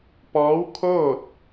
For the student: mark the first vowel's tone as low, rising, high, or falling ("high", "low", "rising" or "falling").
rising